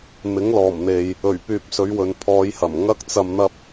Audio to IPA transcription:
mɪ˨˥ŋlɔː˨˩mn̪e˨j | ɵ˨˩ɥpyː˨p̚sɵ˨˧ɥwɵ˨n pʰɔː˨˧jhɐ˨˩m ŋɐ˥k̚t͡sɐ˧m n̪ɐ˥p̚

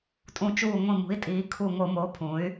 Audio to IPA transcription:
tʼũ˧˩˧ t͡ʃuː˧˩ŋʷĩ˧˩ mṳ˩˥i̯tʼiː˩˧ kʰu˧˩ŋo˧˩˧moː˩˥ pʰũ˩˧y̯

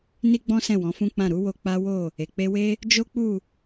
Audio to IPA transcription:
ni˦ɡ͡bɔ̃˦sɛ̃˦˨ wɔ̃˨˦fũ˦k͡pã˦˨ ɾu˧wo˧ k͡pa˦wo˦˨ | e˨k͡pe˧we˦ | d͡ʒo˦k͡pu˦˨

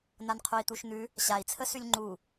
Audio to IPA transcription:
n̪anqʰoi̯t̪uʃn̪ʉ | ɕai̯t͡sʰə sʉlʲŋ͡ǃu

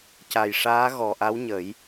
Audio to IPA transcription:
ca˨˩jʂaː˧˥ ɣɔ˨˩ʔa˧˥wɲə˨˩˦j

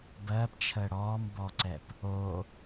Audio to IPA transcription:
bɜp t͡ʃʰəːɽɔːmbɔǀɛp | o

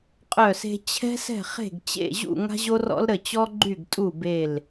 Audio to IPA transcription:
qʼœ˦˨se̤˦ t͡ɕʰɛ̤˦sɛ̤˦˨ χe̤˦˨ɡ t͡ɕḛ˦˨ʑṵ˦˨ ŋa̤˦ʑo˦rɔ̰˦l ɾə˦˨t͡ɕɔ˦ɡ͡ǃy˦˨ɡtʼu˦˨ be˦˨l

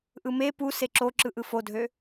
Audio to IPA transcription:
ʔɯme pu seǁo ǁɯʔɯfodʱø

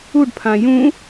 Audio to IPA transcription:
uɖpʰã jũ

